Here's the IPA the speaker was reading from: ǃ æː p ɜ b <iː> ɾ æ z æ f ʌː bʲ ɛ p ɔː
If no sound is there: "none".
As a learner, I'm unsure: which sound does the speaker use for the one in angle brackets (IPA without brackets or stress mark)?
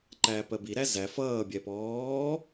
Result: i